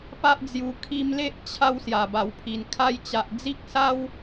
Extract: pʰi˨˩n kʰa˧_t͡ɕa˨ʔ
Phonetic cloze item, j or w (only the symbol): j